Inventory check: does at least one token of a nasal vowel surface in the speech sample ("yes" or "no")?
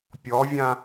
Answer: yes